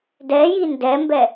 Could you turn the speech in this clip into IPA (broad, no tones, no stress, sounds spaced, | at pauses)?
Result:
d ɛ j i n d ɛ m b ɛ